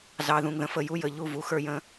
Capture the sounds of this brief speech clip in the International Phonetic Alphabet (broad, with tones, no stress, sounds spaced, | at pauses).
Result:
z ɑ˨ ð ũ˨ ŋ ð ə̃˨ f ə˦˨ j u˦ j ə˨ ʎ u˦˨ v u˨˦ x ə˞˦ j ə̃˦